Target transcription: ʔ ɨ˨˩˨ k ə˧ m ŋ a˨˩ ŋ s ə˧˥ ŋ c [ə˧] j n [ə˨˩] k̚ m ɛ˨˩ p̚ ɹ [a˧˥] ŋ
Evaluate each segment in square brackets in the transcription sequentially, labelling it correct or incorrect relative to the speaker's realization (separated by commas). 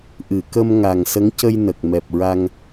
correct, correct, incorrect